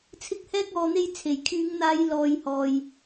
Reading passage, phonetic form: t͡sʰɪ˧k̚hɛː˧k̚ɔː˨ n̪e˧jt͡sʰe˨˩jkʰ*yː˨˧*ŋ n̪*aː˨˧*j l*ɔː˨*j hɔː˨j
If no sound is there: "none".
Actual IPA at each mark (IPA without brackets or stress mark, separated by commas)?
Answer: yː˨˧, aː˨˧, ɔː˨